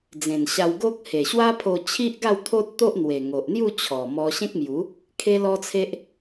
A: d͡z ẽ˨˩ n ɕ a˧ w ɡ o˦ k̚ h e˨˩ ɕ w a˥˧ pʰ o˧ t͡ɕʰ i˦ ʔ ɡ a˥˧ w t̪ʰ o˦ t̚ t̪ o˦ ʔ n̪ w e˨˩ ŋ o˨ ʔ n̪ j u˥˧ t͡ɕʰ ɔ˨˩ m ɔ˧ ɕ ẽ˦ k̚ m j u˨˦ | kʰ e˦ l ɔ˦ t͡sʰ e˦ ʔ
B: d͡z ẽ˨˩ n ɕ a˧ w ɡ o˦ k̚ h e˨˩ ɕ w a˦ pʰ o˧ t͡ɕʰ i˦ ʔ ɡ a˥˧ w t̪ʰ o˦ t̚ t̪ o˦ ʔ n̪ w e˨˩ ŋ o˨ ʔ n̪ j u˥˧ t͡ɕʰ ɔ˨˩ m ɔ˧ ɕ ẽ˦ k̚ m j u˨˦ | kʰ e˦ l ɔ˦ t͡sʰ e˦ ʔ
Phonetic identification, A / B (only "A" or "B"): B